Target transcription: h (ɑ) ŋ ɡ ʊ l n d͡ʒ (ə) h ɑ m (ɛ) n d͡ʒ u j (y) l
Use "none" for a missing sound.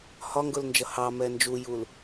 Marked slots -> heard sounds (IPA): ɒ, ʌ, ɛ, u

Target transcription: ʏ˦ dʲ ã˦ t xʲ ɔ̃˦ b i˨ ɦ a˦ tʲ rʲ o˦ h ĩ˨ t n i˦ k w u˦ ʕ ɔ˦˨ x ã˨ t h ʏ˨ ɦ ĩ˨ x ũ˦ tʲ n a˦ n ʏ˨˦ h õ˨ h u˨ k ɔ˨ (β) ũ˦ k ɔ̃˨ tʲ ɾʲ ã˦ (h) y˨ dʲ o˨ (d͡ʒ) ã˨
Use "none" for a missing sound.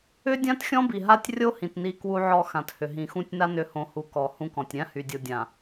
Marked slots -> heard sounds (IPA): h, h, dʲ

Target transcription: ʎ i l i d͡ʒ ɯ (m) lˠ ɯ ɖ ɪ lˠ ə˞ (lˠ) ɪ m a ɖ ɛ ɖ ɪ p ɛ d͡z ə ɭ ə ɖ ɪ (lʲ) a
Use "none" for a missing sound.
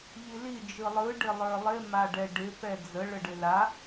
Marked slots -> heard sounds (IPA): none, lˠ, l

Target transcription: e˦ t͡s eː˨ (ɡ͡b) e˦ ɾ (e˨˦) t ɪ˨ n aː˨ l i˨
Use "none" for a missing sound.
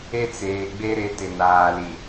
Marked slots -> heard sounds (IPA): ɡ͡b, e˨˦

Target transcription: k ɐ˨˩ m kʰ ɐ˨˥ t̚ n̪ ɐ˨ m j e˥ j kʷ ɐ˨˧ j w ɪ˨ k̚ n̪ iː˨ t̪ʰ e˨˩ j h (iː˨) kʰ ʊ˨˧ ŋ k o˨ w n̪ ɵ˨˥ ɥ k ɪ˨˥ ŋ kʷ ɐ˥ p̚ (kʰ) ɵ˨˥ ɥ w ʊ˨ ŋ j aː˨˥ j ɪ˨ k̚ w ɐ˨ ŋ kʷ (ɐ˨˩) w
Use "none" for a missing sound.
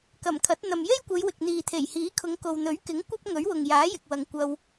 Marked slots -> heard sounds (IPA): iː˨˥, ŋ, ɐ˧

